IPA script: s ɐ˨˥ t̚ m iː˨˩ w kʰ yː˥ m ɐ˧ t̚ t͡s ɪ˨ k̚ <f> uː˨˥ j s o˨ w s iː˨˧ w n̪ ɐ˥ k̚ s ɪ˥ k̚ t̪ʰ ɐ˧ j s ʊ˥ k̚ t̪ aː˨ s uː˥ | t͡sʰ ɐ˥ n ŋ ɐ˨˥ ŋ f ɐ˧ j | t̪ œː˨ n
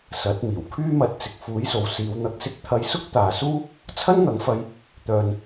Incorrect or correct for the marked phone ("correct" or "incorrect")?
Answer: correct